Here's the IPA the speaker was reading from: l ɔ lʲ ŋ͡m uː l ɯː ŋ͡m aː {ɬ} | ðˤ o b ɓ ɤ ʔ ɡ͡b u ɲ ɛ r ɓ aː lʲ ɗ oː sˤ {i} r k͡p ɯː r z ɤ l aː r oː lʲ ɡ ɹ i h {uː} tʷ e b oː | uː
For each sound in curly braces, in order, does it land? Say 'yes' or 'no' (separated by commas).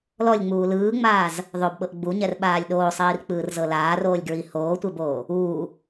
no, no, no